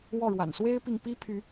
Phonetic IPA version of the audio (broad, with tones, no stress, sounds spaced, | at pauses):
w ɔ˥˨ ɻ w a̰˨˩ n s w e˦ ɪ̯ p i˨ ŋ p i˦ pʰ y˨˦